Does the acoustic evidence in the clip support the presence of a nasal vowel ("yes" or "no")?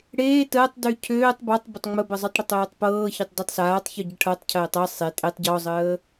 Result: no